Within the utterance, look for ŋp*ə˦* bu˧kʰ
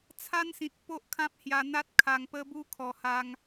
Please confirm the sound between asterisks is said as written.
yes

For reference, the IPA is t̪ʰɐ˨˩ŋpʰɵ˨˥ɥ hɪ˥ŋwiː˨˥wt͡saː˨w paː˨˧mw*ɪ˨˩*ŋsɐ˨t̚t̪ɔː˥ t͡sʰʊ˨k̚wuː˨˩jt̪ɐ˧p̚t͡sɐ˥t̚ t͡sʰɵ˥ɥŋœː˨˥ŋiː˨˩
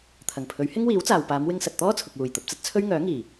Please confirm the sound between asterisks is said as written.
no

